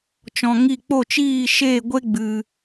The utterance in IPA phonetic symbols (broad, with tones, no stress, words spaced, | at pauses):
t͡ʃɔ̃˧ŋi˦˨ k͡po˦˨t͡ʃiː˦˨ʃeː˦˨ɡʷe˦ ɡ͡bɨ˧